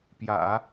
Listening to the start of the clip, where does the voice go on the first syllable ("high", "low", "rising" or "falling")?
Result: low